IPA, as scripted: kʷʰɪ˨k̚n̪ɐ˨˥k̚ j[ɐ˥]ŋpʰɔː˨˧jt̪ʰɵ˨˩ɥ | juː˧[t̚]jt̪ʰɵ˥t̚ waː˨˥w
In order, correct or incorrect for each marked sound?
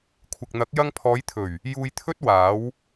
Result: incorrect: ɐ˧, incorrect: none

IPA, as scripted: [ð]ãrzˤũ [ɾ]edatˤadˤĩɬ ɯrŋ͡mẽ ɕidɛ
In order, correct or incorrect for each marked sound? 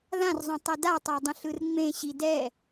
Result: correct, incorrect: tˤ

